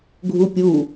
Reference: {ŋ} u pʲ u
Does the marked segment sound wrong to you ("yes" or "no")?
yes